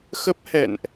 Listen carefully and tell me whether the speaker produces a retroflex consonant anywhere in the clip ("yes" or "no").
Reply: no